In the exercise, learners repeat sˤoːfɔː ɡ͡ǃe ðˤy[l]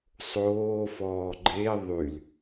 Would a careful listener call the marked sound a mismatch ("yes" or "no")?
no